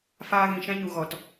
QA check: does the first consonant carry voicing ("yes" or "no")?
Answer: no